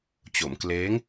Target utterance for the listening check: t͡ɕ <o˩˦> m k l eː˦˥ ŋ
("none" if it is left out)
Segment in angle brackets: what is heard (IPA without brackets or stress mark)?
o˩˦